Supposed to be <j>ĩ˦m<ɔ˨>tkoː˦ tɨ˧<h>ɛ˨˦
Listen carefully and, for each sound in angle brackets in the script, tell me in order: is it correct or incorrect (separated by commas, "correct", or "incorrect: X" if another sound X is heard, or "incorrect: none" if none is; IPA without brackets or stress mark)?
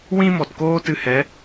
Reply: incorrect: w, correct, correct